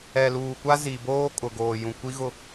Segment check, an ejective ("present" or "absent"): present